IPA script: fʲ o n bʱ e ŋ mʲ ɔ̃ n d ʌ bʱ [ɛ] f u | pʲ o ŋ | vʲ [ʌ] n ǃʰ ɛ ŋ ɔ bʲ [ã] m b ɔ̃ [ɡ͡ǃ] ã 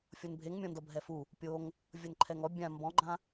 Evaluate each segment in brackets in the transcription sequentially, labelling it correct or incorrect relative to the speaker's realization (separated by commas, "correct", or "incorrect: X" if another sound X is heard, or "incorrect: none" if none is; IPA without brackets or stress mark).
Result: correct, correct, correct, correct